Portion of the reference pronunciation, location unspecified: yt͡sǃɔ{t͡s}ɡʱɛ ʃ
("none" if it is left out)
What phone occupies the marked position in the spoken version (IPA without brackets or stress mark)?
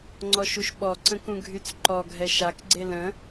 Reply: none